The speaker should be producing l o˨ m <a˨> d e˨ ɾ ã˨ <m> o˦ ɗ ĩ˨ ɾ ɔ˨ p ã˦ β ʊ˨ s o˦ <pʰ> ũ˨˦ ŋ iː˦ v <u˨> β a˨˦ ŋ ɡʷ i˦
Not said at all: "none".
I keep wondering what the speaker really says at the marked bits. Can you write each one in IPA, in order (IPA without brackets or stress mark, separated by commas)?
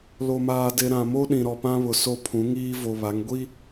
aː˨, m, pʰ, o˨